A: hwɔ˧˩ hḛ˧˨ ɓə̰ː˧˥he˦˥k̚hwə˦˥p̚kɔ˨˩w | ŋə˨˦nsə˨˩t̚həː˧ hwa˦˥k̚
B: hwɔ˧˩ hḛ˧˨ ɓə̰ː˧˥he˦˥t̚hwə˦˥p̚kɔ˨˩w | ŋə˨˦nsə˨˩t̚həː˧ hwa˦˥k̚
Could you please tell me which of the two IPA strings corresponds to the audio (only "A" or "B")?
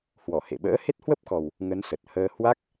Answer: B